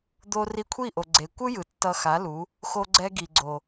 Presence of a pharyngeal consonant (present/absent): absent